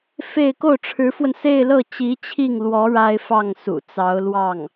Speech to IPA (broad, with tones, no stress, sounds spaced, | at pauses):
f e˥˧ ɪ̯ k o˥˩ ʊ̯ ʈ͡ʂʰ ɻ̩˧˥ f w ə˧ n s e˥˧ ɪ̯ l ɤ˥˩ t͡ɕ i˧˥ t͡ɕʰ i˥˩ ŋ l w ɔ˧˥ ɻ a˥ ɪ̯ f ɑ˥˩ ŋ s ṵ˨˩ t͡s ɑ˧˥ ʊ̯ l w ɑ˥˩ ŋ